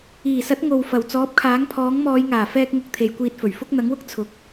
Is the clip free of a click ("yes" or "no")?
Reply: yes